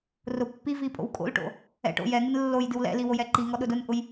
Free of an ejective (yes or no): no